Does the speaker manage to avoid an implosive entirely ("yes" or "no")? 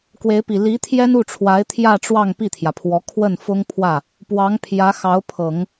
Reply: yes